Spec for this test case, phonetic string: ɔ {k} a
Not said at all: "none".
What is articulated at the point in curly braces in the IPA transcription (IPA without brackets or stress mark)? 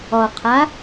qʰ